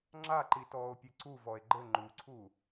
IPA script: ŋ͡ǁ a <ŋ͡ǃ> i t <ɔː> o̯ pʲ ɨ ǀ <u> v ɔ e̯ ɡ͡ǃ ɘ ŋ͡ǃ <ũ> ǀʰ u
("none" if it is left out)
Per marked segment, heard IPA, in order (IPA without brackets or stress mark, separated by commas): ǃ, ɔː, u, u